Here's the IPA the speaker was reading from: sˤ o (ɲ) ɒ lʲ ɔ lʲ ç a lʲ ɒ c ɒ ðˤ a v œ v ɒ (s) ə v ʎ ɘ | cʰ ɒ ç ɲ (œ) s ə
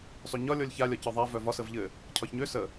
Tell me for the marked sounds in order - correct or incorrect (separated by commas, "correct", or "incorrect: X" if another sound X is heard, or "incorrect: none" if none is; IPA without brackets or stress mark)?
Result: correct, correct, incorrect: ø